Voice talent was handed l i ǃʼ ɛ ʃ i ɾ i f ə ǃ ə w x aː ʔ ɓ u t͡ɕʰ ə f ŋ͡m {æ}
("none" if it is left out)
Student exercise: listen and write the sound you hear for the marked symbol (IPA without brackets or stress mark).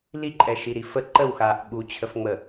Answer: ə